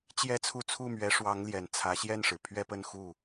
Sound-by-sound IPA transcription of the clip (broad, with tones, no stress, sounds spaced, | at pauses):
t͡ɕ j ɛ˥ t͡sʰ u˥˧ t͡sʰ u˥˩ m ɥ ɛ˧˥ ʂ w ɑ˧˥ ŋ l j ɛ˨˩ n t͡sʰ ä˧˥ ɕ j ɛ˥˩ n ʂ ɻ̩˩ pʰ ɥ ɛ˥˧ p ə˥˧ n x u˥˩